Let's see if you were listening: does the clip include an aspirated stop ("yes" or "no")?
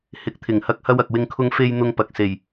yes